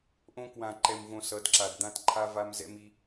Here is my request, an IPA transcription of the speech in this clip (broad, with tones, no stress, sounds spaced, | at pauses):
ʔ õ˦ k w ã˧ ǃ ɛ˧ m v õ˧ s ʌ˨˦ d ǁ a˨ d d̪ ã˦ t ǃʰ a˦ v a˦ m z ɛ̰˧ m i˧